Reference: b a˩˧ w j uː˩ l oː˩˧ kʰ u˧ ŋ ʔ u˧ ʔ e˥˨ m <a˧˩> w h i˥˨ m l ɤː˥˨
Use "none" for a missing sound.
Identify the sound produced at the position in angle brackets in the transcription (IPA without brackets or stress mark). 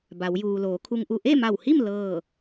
a˧˩